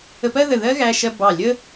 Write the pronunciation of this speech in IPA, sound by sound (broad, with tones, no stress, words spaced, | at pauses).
ə˧pɜ˥ðə˧˩ ðɜ˥ɣæ˧ʃɜ˧ bɑ˧˩lʲə˥